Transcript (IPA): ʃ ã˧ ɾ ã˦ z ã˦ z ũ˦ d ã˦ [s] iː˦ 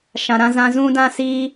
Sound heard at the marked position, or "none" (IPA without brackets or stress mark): s